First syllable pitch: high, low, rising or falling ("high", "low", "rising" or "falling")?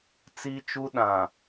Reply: high